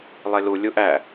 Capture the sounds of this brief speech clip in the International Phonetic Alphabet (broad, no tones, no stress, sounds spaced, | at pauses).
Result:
lˠ e l u lʲ u ʔ æ